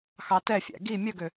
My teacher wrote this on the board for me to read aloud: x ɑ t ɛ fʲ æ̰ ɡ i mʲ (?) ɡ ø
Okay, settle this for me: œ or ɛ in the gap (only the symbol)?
œ